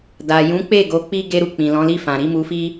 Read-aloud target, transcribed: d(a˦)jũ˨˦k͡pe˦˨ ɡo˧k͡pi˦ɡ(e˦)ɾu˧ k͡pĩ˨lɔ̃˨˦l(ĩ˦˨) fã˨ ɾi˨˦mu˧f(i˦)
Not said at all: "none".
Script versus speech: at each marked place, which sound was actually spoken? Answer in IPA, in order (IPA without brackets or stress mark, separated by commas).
a˨, e˦, i˦˨, i˦